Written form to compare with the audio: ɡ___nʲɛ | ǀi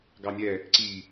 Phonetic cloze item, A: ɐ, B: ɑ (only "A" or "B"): B